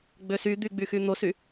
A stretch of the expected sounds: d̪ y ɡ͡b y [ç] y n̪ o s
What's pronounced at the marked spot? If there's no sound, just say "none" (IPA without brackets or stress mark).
x